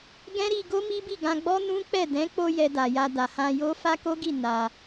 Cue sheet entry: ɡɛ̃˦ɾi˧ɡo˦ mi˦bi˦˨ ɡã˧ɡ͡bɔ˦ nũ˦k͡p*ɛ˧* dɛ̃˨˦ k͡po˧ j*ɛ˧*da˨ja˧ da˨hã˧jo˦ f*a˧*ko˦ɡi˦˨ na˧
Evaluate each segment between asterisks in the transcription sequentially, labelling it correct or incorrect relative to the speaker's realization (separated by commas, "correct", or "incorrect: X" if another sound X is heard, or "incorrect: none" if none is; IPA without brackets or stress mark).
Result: incorrect: ɛ˦˨, correct, incorrect: a˦